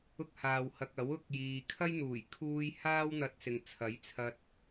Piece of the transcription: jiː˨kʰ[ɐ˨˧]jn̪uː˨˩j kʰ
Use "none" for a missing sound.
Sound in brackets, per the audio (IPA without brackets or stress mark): ɐ˥